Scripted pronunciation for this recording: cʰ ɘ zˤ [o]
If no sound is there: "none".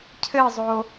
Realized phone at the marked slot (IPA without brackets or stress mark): o